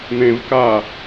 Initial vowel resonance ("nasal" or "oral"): nasal